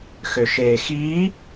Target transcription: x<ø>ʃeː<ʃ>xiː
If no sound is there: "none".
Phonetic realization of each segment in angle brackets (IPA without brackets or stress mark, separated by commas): ø, none